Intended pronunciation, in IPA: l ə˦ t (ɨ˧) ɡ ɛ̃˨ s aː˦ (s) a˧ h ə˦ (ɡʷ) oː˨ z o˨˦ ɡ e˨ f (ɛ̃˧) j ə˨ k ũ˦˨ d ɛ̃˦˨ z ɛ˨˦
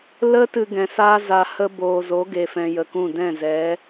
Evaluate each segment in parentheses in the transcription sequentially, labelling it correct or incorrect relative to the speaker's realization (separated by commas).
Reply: correct, incorrect, incorrect, incorrect